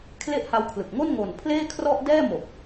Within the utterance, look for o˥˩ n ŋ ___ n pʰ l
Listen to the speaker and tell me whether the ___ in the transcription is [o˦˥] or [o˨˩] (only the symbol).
o˨˩